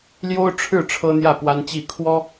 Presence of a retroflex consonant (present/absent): present